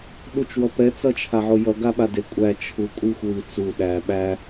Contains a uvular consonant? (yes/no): no